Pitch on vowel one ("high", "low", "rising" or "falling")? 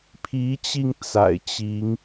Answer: rising